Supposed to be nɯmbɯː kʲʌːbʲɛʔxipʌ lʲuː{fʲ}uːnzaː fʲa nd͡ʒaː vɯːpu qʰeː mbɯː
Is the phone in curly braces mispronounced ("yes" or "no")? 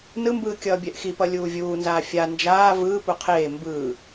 yes